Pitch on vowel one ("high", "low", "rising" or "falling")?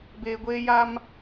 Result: low